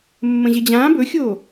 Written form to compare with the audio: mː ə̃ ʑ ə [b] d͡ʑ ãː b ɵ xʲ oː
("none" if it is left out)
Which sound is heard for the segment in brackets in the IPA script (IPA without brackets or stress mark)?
none